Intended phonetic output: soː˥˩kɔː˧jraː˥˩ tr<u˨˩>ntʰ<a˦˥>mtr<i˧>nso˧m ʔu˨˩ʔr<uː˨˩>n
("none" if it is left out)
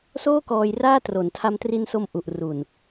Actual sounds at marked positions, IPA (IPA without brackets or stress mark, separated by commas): o˨˩, a˧, i˧, u˨˩